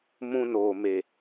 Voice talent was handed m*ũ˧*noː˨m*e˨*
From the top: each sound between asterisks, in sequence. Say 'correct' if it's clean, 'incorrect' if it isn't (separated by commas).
correct, correct